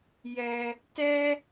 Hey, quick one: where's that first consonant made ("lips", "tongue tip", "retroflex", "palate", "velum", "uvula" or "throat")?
palate